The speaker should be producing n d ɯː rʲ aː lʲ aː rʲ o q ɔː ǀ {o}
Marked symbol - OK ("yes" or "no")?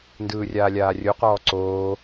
no